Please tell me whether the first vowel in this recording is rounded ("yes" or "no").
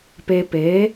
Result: no